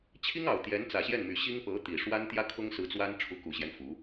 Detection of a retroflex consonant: present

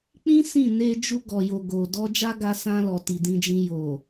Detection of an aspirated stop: absent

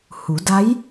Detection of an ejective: absent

